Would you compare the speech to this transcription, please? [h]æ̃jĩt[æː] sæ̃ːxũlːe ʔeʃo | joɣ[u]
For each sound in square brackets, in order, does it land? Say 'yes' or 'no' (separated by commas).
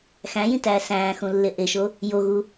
no, yes, yes